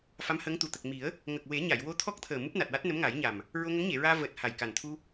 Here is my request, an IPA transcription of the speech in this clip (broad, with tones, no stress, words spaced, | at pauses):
fa˧˥mhəː˧˥ŋt̪u˨˩ t̪ə˨˩k̚mi˨˩˦ə̯ | ŋə˨˩k̚we˨˩˦ ɲa˨˩˨j wo˧t̪ʰɔ˦˥k̚t̪ʰəː˨˩ mu˦˥p̚na˨˩t̚wa˦˥t̚ nə˧˥mŋa˨˩˦jɲa˨˩m | ɹo˧ŋə˧˥ŋɲe˨˩˨ɹaː˧ vəː˨˩t̚ ha˨˩jka˨˩n t̪ʰu˧